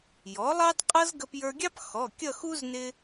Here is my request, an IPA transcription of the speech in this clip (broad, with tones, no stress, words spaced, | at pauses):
jɔ˩˥lˠɑ˥dqʼʌ˥z ɡə˧pjə˞˧ɡʲɑ˥p xɔ˩˧˩ kʲʌ˥˧xu˥z nɪ˧